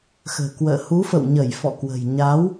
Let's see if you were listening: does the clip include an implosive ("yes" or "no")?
no